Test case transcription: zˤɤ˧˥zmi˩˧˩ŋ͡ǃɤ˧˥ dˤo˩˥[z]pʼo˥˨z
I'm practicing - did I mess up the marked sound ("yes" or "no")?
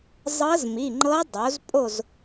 no